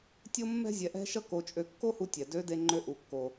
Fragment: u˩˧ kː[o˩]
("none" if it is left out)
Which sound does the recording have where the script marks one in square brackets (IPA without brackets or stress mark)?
o˩